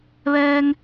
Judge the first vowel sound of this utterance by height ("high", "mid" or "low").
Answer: mid